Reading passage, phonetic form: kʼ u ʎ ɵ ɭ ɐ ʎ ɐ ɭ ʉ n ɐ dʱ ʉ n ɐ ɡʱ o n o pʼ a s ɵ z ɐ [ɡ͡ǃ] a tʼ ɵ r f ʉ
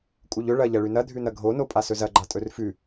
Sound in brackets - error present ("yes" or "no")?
no